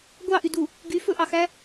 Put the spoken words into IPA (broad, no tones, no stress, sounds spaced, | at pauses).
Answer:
ɡʷ ɑ ʔ y d u | ɡ y f ɵ ʔ ɑ x æ